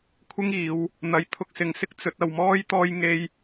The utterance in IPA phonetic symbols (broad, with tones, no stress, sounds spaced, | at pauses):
kʷʰ ɪ˥ ŋ iː˨˧ w | n̪ ɐ˨˥ j t̪ʰ ʊ˧ k̚ s ɪ˨˥ ŋ s ɪ˧ k̚ t͡s ɵ˨˥ t̚ ɐ˨ w m ɔː˥ j t̪ ɔː˥ j ŋ e˥ j